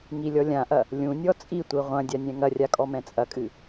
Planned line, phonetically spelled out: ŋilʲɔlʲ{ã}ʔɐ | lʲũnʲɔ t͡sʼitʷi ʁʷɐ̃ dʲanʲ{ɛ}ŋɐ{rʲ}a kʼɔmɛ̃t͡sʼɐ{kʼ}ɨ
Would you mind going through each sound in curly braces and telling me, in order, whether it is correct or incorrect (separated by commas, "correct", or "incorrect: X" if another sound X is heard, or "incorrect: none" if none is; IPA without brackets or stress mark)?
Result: correct, incorrect: ɛ̃, correct, correct